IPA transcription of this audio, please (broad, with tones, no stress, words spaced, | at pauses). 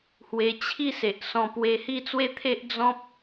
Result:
hwe˧ t͡ɕʰi˥˧ se˨ʔsɔ̃˧ pwe˧hi˥˧t͡swe˦ t̪ʰe˦ʔd͡zɔ̃˦p̚